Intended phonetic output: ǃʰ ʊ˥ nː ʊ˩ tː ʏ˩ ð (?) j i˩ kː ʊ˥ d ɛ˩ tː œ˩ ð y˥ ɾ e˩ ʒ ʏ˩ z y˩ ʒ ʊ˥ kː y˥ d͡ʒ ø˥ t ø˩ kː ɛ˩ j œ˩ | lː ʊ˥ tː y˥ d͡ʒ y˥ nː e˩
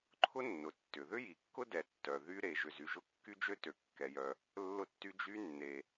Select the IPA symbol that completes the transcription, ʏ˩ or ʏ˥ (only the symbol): ʏ˥